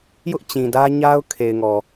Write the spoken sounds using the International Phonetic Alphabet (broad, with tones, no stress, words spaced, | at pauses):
jʊ˦ʔ t͡ɕĩ˨dä˦ ɲa˦ʊ̯ kʰe˨ɪ̯ŋɔ˨